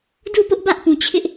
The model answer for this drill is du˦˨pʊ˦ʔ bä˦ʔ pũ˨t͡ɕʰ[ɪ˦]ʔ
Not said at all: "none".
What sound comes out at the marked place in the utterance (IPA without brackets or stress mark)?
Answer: ɪ˦